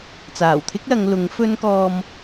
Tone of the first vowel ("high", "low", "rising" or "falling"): low